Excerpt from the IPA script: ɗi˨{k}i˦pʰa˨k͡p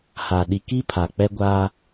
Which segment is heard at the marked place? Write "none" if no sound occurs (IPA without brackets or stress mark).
k